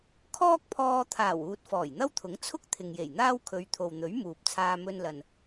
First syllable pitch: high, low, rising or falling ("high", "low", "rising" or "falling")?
high